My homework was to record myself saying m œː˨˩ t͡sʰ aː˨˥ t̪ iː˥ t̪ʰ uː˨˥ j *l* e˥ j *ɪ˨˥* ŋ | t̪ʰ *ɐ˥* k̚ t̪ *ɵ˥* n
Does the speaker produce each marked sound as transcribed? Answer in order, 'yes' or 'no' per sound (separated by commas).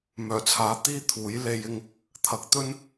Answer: yes, no, no, yes